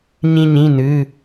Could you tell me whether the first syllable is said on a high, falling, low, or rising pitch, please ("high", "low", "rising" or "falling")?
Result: high